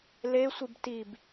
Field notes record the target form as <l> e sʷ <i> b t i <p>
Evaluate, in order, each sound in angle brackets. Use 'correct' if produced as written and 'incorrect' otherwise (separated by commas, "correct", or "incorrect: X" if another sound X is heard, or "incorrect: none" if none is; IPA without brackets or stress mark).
correct, correct, incorrect: b